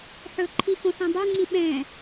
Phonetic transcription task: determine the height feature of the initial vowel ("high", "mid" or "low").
mid